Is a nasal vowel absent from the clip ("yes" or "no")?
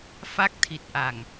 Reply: yes